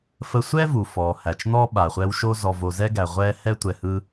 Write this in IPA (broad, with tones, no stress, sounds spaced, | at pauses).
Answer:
f ə˦ sʷ ɛ˥ v u˩ f ɔː˩ h æ˩ t͡ʃ n̪ ɔ˥ ɓ a˩ χʷ ɛ˦ w ʃ o˥ z ɔ˨ v o˨ z ɛ˥ ɡ æ˩ ʁʷ ɛː˦ h ɛ˥ tʷ ɛ˨ h ɯ˦